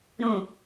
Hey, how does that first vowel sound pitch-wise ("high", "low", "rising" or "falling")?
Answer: low